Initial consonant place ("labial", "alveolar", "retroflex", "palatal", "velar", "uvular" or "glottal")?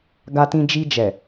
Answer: velar